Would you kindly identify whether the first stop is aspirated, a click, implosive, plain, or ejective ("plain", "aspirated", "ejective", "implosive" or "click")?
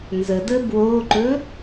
plain